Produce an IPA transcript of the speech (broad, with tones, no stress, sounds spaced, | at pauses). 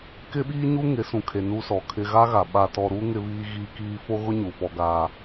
k ɪ˦ ɓ iː˦ ɲ u˦ ŋ ɪ˨˦ s ũ˨ kʰ e˨ n u˦ s ɔ˨ kʰ ɪ˦ ɣ a˦ ɣ a˨ ɓ a˨ t ɔ˨ ɾ u˦ ŋ ɪ˦ β iː˦ ɣ iː˦ k iː˦ f o˦ ɣ ʊ˦ ɲ u˨ f ɔ˦ ɡ aː˦